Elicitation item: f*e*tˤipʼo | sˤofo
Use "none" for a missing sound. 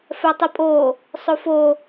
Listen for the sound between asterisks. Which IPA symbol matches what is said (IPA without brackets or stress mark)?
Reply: ɛ